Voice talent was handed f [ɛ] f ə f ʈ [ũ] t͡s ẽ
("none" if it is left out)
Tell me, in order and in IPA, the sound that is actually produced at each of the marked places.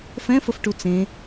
ɛ̃, u

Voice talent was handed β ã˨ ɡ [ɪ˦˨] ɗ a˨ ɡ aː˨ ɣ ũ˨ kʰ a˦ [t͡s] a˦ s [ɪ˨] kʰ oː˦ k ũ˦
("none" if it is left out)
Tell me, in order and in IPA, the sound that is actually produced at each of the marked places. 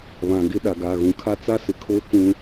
ɪ˦, t͡s, ɪ˨

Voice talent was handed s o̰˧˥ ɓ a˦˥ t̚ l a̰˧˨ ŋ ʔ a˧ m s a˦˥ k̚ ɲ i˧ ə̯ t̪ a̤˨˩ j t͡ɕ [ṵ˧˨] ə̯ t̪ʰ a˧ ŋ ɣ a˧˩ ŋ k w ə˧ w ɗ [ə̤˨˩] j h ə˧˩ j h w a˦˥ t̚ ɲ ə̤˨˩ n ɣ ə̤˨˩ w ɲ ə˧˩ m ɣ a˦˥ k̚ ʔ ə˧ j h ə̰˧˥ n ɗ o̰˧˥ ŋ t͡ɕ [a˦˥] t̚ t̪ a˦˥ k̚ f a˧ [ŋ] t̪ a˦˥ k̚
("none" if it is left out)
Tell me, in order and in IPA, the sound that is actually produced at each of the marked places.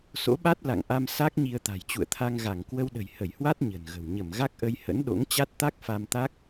ṵ˧˨, ə̤˨˩, a˦˥, m

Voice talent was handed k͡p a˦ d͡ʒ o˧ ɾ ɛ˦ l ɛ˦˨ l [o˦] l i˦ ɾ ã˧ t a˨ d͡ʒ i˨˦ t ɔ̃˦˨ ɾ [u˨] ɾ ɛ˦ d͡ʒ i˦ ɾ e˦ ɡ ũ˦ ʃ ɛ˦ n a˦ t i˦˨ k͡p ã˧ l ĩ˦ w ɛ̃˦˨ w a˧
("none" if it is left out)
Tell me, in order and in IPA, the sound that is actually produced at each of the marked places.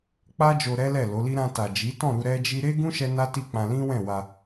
o˨˦, u˧

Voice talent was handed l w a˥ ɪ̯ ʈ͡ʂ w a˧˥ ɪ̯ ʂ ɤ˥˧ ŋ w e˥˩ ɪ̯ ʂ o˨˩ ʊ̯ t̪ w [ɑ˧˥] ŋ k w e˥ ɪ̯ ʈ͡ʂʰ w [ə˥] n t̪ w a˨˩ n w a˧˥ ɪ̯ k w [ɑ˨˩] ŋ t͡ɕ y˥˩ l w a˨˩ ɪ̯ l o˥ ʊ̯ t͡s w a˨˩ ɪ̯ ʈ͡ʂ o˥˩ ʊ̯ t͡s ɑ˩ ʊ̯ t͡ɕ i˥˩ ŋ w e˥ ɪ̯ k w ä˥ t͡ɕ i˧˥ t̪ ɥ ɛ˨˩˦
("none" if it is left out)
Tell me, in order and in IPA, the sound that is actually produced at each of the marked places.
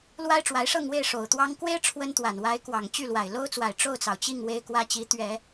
ɑ˥, ə˥, ɑ˨˩

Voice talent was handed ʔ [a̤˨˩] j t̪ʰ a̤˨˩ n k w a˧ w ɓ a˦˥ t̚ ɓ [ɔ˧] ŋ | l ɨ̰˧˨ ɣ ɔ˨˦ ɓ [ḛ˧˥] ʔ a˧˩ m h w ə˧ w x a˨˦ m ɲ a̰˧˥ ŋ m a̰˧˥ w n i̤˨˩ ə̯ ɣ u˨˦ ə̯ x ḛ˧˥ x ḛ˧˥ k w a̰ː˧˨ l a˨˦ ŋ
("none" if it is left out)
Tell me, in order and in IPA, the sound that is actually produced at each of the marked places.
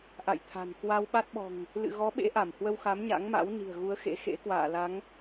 a̰˧˨, ɔ̤˨˩, ḛ˧˥

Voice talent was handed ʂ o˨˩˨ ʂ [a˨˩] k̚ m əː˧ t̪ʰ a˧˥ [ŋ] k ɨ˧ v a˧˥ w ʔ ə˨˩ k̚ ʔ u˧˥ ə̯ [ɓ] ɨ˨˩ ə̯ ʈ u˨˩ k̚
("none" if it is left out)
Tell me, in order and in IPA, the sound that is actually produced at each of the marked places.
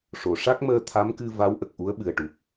a˦˥, m, ɓ

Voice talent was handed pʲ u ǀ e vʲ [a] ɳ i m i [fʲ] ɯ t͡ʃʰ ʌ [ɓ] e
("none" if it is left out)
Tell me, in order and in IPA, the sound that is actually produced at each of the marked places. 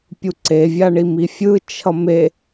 a, fʲ, m

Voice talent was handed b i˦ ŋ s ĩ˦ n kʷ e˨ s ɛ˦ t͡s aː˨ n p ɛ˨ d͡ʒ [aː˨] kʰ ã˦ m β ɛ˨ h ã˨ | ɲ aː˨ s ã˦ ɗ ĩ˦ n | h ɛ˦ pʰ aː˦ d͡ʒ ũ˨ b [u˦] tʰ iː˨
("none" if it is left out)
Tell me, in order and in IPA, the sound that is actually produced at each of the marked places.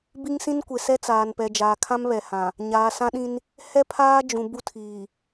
aː˨, u˦

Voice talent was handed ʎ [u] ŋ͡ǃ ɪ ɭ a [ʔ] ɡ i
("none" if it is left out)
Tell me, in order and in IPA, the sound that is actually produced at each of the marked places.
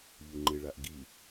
u, ʔ

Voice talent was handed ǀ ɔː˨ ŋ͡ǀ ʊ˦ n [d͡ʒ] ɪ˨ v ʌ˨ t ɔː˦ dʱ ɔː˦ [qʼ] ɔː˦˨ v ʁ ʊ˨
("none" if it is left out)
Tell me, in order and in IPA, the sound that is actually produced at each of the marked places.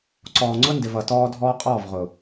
d, qʼ

